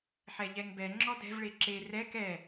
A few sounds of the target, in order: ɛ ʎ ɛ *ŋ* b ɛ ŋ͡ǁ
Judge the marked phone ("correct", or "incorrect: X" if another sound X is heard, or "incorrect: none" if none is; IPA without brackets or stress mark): correct